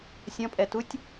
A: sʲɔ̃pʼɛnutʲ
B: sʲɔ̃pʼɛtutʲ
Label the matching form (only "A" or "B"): B